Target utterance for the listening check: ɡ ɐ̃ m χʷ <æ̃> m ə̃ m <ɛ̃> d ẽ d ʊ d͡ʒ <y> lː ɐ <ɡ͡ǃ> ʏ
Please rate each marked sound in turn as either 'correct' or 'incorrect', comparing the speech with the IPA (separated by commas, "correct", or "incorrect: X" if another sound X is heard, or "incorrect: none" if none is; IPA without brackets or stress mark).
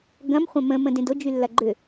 incorrect: ɐ̃, incorrect: ə̃, correct, correct